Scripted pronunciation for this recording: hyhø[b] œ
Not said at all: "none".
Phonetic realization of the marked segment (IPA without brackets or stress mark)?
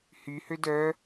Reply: d